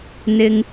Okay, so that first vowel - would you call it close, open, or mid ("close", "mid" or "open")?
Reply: close